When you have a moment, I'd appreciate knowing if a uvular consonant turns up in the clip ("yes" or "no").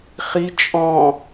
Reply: yes